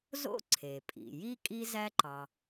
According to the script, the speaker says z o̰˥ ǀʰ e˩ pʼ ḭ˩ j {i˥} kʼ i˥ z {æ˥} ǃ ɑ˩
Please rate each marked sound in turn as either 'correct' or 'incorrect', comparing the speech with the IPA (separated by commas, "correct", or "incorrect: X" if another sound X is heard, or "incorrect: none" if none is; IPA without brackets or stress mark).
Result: correct, correct